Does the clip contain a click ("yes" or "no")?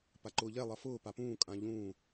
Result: yes